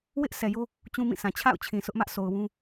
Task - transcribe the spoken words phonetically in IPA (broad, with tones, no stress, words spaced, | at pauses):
wɪ˦ʔ sʰɛ˨jo˦ | t͡ɕũ˦mĩ˦˨sã˨ t͡ɕʰa̰˦˨ʊ̯t͡ɕʰĩ˨ sʊ˦ʔmä˦ʔsʰo˨ʊ̯wũ˦